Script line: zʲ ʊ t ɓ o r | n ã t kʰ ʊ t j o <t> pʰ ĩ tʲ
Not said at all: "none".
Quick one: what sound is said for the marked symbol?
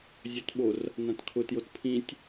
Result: t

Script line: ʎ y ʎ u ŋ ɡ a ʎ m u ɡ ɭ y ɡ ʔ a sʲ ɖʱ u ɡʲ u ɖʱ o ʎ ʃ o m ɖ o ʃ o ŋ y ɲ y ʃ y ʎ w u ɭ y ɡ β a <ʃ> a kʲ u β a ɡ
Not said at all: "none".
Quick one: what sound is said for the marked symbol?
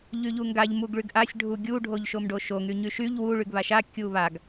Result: ʃ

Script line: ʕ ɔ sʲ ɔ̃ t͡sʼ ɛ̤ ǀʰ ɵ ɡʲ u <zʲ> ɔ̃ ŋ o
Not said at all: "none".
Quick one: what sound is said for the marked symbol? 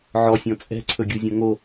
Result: zʲ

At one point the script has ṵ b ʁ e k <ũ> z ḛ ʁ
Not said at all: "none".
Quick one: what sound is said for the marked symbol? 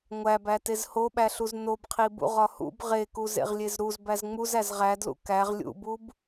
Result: u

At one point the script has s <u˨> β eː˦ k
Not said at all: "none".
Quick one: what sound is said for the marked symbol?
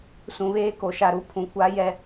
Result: ũ˨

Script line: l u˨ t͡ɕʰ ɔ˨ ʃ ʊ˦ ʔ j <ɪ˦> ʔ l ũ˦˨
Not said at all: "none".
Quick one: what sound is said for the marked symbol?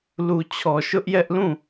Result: ɛ˦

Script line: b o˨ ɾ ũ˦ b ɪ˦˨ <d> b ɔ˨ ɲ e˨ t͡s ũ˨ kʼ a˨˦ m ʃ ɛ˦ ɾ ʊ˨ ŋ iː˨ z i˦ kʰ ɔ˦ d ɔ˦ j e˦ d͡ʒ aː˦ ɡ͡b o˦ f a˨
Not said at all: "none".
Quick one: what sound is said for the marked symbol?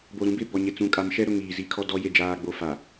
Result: none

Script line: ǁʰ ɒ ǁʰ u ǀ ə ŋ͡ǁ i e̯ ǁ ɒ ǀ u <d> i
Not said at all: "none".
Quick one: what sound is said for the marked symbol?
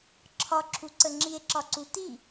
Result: t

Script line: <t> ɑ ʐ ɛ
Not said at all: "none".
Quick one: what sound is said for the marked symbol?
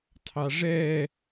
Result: tʰ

